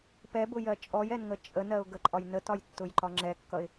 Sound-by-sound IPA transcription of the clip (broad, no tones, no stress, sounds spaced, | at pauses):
p ɛ b ʊ j ɜ t͡ʃʼ ɔ j ɛ n ŋ ə t͡ʃʼ ə n ɜ ʊ̯ ɡ ə ǃʼ ɒ j n ə t ɒ j tː ʊ j ǃ ɒ ŋ͡ǁ ɛ kː ʌ ɪ̯